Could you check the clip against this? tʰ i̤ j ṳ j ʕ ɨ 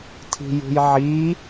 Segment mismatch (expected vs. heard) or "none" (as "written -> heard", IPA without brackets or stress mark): ɨ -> i